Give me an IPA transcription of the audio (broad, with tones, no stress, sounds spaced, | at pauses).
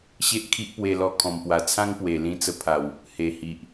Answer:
ɕ e˦ ʔ kʰ i˦ ʔ p w e˧ l ɔ˧ kʰ ɔ̃˨˩ m p w a˨˩ t͡sʰ ã˦ ŋ p w e˨˩ l ĩ˧ t͡s ə˧ pʰ a˨˩ w | h e˨˩ h i˨ ʔ